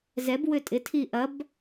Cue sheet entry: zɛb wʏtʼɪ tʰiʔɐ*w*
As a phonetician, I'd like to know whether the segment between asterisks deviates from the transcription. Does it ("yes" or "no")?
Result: yes